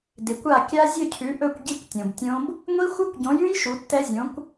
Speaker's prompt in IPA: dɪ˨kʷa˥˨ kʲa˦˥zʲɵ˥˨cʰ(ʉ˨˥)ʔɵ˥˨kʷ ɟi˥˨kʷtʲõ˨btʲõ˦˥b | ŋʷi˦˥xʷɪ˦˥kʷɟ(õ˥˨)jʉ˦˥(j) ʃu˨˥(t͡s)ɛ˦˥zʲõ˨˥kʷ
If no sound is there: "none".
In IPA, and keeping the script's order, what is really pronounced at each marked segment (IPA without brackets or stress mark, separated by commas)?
ʉ˨˥, õ˨˥, j, tː